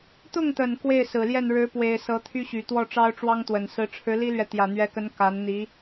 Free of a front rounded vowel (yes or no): no